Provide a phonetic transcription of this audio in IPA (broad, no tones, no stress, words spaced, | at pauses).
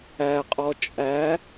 æqʼɔ t͡ʃʼæ